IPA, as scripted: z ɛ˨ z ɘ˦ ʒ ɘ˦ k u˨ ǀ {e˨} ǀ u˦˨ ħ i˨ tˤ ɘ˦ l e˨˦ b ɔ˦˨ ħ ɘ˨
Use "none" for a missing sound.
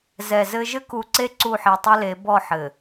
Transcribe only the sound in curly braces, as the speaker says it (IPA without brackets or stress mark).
e˦